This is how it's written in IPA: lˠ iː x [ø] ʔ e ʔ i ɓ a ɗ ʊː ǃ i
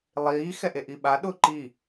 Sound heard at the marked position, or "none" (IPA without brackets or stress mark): ɛ